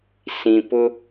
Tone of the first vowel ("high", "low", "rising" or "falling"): low